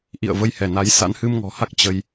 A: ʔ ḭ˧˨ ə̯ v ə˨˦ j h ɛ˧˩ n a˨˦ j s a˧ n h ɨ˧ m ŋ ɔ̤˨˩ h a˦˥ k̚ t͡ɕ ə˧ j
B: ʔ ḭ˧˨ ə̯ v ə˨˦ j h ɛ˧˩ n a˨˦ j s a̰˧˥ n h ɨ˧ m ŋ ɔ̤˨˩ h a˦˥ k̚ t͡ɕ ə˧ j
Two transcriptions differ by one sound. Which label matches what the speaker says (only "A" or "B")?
B